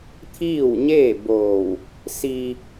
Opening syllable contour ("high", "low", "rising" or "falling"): falling